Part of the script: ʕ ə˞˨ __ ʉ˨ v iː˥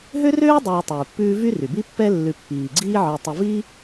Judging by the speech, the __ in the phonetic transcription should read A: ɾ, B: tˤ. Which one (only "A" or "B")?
B